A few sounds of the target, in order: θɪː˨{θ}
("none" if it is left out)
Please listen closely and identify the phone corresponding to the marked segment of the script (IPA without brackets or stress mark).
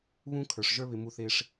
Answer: ʂ